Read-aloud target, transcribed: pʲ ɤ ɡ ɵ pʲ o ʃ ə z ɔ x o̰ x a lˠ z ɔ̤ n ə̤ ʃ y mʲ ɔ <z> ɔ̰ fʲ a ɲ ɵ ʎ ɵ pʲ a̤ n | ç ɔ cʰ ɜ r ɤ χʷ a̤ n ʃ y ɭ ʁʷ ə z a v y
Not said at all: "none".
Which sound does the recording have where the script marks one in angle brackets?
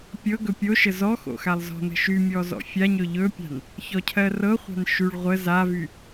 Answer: z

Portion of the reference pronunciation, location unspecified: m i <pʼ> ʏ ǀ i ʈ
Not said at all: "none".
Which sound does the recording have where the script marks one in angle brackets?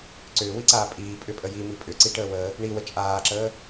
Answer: pʼ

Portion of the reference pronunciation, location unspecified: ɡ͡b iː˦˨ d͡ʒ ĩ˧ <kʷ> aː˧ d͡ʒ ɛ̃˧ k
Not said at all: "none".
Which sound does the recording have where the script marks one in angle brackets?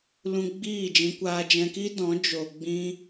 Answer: kʷ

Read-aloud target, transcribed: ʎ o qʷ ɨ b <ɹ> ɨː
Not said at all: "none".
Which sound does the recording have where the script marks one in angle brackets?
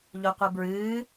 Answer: ɹ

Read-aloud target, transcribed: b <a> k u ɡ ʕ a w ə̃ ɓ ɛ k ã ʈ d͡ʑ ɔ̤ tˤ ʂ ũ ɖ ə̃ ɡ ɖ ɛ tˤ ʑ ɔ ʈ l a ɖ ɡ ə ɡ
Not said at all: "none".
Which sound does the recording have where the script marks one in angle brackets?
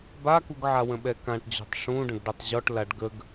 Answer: a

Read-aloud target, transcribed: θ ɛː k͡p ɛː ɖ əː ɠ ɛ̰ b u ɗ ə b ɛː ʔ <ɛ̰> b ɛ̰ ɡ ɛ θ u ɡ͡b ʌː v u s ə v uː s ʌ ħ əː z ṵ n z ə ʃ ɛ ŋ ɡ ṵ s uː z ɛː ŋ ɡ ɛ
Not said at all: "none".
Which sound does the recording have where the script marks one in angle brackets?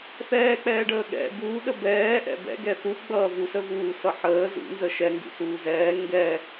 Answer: ɛ̰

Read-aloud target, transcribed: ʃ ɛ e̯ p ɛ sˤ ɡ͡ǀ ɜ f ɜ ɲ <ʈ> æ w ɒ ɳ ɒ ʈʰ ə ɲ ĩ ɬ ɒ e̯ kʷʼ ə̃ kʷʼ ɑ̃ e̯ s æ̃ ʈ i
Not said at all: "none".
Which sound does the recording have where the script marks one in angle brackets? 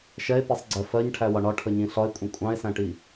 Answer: ʈʰ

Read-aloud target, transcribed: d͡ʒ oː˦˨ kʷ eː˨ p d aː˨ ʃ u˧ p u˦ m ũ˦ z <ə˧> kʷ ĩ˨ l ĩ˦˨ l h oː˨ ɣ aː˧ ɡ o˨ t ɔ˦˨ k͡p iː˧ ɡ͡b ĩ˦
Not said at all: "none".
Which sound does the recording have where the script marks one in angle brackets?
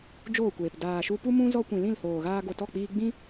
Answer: ɔ˧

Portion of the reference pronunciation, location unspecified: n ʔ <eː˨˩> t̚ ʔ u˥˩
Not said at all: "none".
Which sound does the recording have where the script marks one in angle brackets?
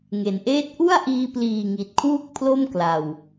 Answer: eː˥˩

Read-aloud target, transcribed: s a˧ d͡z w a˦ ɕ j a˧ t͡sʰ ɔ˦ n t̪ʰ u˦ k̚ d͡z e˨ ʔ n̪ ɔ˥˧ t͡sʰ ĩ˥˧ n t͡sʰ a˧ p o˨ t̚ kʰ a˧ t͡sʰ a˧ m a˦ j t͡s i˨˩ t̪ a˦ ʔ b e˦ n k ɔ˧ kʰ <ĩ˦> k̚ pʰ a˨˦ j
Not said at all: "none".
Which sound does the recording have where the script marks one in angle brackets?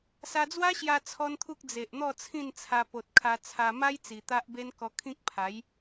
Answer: ĩ˦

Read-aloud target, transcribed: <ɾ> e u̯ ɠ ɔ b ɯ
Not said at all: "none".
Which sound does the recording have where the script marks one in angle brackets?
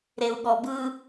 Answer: ɾ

